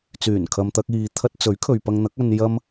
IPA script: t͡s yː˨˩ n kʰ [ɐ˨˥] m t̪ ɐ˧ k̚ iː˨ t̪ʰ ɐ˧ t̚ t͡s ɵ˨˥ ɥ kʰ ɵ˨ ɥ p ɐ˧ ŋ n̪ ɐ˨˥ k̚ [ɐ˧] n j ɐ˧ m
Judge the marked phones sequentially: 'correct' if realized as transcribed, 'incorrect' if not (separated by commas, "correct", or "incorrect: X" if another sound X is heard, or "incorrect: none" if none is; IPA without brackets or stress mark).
incorrect: ɐ˨, correct